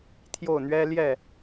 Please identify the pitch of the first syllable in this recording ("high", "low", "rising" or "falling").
falling